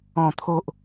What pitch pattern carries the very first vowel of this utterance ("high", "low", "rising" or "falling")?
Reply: low